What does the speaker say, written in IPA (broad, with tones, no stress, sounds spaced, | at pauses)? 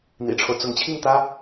n̪ ḭ˨˩ ʈ͡ʂʰ o˦ ʊ̯ t͡s ʊ˧˥ ŋ t͡ɕʰ i˥˩ ŋ t̪ ä˥